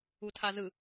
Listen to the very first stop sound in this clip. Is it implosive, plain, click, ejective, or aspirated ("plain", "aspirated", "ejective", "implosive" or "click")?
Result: aspirated